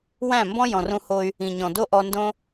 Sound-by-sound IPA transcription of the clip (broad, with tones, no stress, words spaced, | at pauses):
wæ̃˦˨mbɔ̃˦ jɔ̃˨rũ˧ho˧y̯ | ĩ˨ɲɔ̃˨ do˦ʔɔ˧ndõ˦